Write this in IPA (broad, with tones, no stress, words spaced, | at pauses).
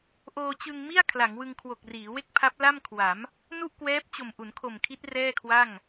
ʔoː˧t͡ɕɯ˧ŋmi˥˩a̯ kʰla˩˦ŋwɯ˧ŋkʰwo˨˩k̚riː˩˦ we˥˩k̚pʰa˦˥p̚ la˥˩mkʰwa˩˦m | nu˥˩ʔkwɛː˦˥p̚t͡ɕo˨˩m ʔu˩˦nkʰo˨˩mkʰi˦˥t̚ rɛː˥˩kʰwa˥˩ŋ